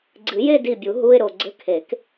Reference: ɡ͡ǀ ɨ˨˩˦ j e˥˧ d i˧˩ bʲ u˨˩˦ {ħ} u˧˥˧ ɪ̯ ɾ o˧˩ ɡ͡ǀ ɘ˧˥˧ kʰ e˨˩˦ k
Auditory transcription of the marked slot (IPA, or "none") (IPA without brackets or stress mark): ɦ